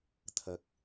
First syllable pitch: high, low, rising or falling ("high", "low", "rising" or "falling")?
low